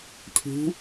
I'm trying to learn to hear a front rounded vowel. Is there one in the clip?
no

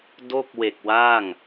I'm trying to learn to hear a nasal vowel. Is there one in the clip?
no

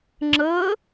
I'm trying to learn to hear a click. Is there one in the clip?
yes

